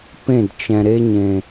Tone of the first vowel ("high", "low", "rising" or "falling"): falling